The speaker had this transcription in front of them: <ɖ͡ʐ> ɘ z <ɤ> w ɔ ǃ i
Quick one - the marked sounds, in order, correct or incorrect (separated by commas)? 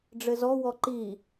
correct, incorrect